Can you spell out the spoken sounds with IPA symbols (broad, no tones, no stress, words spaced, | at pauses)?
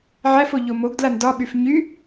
ʕæfo ʎomoɡdlan dɒɓyf ɲy